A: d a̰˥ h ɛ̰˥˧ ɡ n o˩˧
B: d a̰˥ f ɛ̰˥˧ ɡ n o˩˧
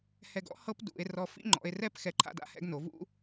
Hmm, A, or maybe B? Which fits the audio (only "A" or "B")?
A